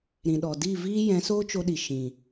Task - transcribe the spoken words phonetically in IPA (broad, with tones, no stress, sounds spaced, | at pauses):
ɾ ĩ˨ ɗ ɔ˨ d i˦˨ v iː˦ j ɛ̃˨˦ s oː˦ t͡ʃ o˧ ɗ i˨ ʃ ĩ˨